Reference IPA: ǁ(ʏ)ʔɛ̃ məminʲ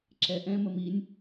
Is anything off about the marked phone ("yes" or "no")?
yes